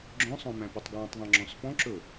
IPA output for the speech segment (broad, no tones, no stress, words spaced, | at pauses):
ɡ͡ǁœ̃sˤœ̃ mæ̃pɵtˤɡwɑ̃tˤðˤɑ̃ ŋ͡ǁɔ̃sfɔ̃ǁɵ